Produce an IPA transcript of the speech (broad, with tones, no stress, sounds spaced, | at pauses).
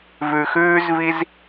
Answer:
v ʉ˩ x ʉː˥ z v i˥ z